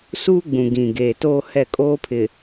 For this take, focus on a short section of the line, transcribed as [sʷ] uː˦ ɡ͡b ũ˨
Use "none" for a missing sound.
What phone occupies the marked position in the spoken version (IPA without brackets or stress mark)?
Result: s